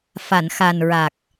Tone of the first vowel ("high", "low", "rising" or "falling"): low